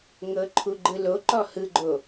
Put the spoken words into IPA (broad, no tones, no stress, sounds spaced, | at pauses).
ŋ ɤ ǃʰ u ɡ͡ǃ ɯ l o ǃ ɔ h ɯ ɡ͡ǃ o